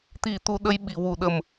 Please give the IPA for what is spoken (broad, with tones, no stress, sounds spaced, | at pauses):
t̪ i˨˩˦ t̪ u˨˩˦ ɗ ə˧ j ɓ i˨˩ w u˨˩˦ ɗ ə˨˩ m